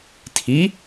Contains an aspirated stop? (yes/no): yes